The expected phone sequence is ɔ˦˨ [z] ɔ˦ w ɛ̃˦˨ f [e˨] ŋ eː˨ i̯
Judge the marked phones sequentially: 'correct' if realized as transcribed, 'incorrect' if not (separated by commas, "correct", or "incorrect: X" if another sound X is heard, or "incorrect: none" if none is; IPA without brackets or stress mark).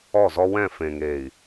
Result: correct, incorrect: ẽ˨